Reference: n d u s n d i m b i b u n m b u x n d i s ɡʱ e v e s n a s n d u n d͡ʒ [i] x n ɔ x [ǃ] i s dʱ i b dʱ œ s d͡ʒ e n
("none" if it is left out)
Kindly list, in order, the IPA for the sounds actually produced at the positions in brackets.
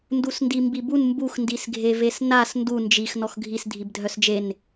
i, ɡʱ

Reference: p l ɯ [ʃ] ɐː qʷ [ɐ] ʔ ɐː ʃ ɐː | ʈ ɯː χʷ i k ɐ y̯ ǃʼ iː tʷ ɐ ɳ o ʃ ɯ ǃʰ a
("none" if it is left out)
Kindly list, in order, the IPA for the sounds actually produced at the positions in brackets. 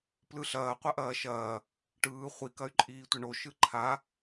ɬ, ɐ

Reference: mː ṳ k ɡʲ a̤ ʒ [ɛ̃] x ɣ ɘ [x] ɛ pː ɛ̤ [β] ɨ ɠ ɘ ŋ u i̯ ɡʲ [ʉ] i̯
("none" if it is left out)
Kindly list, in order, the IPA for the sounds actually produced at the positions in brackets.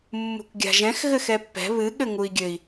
ɛ̃, x, β, ɘ

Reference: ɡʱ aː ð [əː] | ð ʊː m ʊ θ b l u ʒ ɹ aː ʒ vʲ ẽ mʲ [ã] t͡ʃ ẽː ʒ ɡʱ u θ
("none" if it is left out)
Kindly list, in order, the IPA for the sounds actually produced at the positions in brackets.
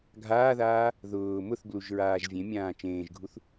aː, ãː

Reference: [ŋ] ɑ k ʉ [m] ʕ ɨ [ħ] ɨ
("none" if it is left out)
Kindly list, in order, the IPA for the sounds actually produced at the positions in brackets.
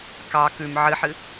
k, m, ħ

